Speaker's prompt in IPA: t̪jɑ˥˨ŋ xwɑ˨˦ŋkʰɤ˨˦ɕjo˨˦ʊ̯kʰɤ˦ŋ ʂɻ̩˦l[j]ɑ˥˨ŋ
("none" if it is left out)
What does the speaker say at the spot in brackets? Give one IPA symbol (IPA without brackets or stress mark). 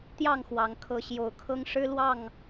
w